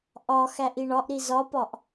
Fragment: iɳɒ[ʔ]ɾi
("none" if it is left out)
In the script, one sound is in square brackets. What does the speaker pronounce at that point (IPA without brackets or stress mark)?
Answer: ʔ